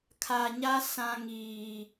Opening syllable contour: low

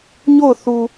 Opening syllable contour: falling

